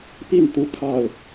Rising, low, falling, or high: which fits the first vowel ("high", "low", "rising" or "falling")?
falling